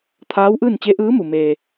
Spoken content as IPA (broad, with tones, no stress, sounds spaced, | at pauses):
t̪ʰ aː˧˥ w ʔ ɯː˥˨ n t͡ɕ e˧˥ ʔ ɯː˧˥ m u˩ m eː˩